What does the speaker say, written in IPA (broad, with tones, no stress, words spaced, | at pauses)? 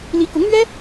li˧˥kʊ˧˥ŋn̪ɥɛ˥